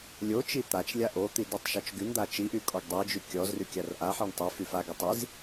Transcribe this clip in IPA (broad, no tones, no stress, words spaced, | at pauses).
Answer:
lʲo t͡ʃit̪at͡ʃlʲa ʔot̪i dytˤʃɔt͡ʃɡynd̪a t͡ʃiʔy kʼɔɡdˤid͡ʒy kʲɔzry kʲarʔaħiɳ tˤy fyfaɡi tˤiz